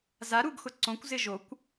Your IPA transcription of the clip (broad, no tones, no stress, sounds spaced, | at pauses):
z a ɾ u ɡ x ʊ ǀ õ kʷ z ɪ ʒ o kʷ